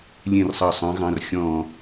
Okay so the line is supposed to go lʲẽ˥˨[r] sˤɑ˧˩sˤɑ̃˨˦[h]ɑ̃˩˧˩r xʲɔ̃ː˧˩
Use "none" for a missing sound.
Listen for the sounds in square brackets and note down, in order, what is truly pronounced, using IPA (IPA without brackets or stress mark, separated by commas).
r, ɣ